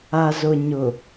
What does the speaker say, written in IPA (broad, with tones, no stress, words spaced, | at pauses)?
a˨zʊ˨ɲʊ˨